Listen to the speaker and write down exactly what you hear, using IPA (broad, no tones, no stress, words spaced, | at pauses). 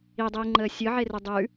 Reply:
idˤiːŋ͡ǃəː sʲɯʕerʉ dˤʉ